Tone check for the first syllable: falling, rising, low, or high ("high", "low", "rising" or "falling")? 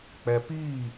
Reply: low